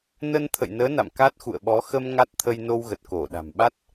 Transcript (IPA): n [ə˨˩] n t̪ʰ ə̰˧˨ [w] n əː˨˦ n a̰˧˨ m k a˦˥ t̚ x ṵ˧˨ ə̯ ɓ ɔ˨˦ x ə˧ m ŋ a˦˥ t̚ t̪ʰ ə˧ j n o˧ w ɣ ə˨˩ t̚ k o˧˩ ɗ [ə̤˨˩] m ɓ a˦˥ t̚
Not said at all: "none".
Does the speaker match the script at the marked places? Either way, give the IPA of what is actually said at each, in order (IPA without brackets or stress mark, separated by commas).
ə˧, j, a̤˨˩